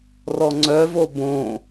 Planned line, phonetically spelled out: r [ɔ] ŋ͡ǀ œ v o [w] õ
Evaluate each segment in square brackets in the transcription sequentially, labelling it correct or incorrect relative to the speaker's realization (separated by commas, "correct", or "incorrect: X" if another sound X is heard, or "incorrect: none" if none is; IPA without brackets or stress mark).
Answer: correct, incorrect: b